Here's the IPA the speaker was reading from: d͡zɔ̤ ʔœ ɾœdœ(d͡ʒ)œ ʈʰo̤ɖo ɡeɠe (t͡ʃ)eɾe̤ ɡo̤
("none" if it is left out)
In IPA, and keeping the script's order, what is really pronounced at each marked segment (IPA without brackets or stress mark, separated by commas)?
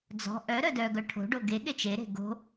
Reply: ɡ, t͡ʃ